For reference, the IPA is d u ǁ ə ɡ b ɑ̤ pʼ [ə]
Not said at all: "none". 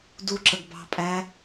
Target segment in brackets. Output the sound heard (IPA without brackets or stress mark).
æ